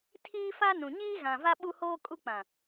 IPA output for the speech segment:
tʰiː˦fa˦nũ˨ ɲiː˦ɣã˨va˦ ɓu˦hoː˦kʼu˦k͡pã˨

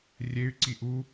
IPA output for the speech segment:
rʲey̯ ǀiʔu

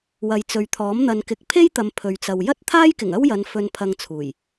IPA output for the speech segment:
wɐ˨jt͡sɵ˨ɥt̪ʰɔː˨˥m n̪ɐ˨nkɪ˨˥k̚ pʰe˥jt̪ɐ˨m pʰɵ˨ɥt͡sɐ˨w jɐ˥t̚t̪ʰaː˥jkɪ˨˩ŋ ɐ˥wjɐ˨˧n fɵ˧npʰɐ˧ŋt͡sʰuː˨˩j

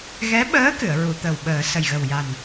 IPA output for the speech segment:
ɣɛ˧˥ɓəː˧˥ kɨ˨˩˨ə̯ɹu˨˩˨t̪ə˨˩w ɓəː˨˩˦ sə˨˩jɣə˨˩wja˨˩n

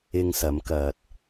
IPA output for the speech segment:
ɪ˧ŋsɐ˨˧m kɐ˨t̚

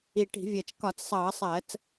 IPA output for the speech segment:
i˨˩ʈi̤˧˩˧vʲɜ˨˩t͡ʃ kɒ˧˩˧t͡ssˤʌː˧˩˧sˤɜ˧˩˧t͡s

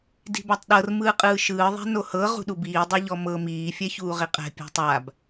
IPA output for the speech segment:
di̤batˤɗɤr mɯːqʼɯːʃɯː ðˤɛ̤nohɤ ʁṳɗubiː dˤoʎɔmɤ miː fʲɛçuːʁiqʼɛ̤ pʲɛ̤tˤab

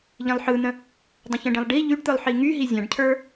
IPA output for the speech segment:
ʎĩlˠħɯn̪ə̃ | dˤə̃çə̃ɖĩlˠ ɖi ʎyɖt̪ɯlˠ ħiŋyɦi zʲãɖcʰə˞

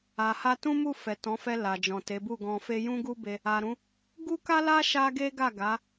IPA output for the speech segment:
a˨ha˧ tũ˦mu˦˨ fɛ˨tɔ̃˨˦fɛ˧ la˨d͡ʒɔ̃˨te˨˦bu˦˨ ɡɔ̃˧fe˦ jũ˦ɡu˦be˧ | a˨ɾũ˨˦ | ɡu˦ka˦la˦ ʃa˦ɡe˦ɡa˦˨ ɡa˨˦

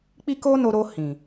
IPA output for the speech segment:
k͡pi˦ko˦no˧ ɾo˧ hĩ˨

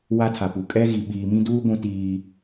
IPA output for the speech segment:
wa˦tʰa˨pu˨ kʼɛ˦ ɣi˨ɓiː˨mĩ˦duː˦ ɡʷũ˦tiː˦

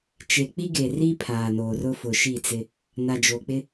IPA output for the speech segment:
t͡ʃe˨k͡pi˦ɡe˨ri˦ pʰaː˨noː˨rʊ˦ fʊ˨ʃi˦˨t͡sɪ˦ | na˨d͡ʒo˨k͡pɪ˦

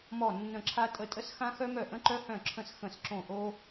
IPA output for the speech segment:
mɔ˥˩ nːə̃˥˩ǁʰa˥ tʼə˥˩tʼə˥sxã˥ xœ˥mœ˥˩ ʔə̃˥ǃœ˥hœ̃˥˩ǁʰə̃˥˩s xə̃˥˩sǁõ˥˩ʔo˥

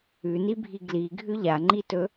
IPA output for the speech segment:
ʉnibʱi ɡliɡʱʉ ʎaŋ͡ǃitɵ

